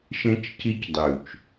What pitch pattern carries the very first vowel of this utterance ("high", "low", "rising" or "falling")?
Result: high